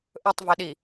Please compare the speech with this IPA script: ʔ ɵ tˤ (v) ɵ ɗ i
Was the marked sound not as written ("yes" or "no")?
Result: no